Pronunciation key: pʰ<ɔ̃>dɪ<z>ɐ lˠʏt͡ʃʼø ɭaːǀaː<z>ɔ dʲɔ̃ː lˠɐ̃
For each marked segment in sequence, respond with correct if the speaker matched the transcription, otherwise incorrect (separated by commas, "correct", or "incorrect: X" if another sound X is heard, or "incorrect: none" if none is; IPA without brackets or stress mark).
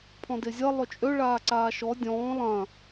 correct, incorrect: zʲ, incorrect: ʃ